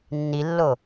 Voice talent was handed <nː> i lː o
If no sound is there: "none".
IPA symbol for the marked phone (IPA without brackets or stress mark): nː